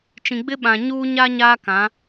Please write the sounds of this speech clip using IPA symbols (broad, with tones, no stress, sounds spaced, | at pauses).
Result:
t͡ʃ ĩ˨ ɡ͡b ɪ˦ ɓ ã˨ ɲ uː˦ ɲ a˦ ɲ aː˦ k ã˨˦